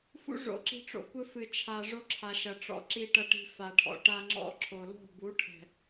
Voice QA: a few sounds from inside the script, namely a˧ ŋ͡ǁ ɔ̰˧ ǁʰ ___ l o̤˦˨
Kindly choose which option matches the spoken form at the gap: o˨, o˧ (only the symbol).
o˨